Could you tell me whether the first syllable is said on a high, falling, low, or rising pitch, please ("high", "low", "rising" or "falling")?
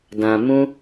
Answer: low